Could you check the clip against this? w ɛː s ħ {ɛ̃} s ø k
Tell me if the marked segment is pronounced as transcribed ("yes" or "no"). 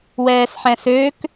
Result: yes